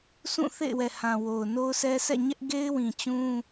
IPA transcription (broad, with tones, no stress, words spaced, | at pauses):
sũ˦˨θḛ˦˨ɪ̯wɛ˨ hã˨wo˨ʊ̯ no˦ʊ̯sɛ˦ sʰɛ̰˦˨ɲɛ˦ʔ ɡe˦ɪ̯wĩ˨ t͡ɕũ˦